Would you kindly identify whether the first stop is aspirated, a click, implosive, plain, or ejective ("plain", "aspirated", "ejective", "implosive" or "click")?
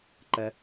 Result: click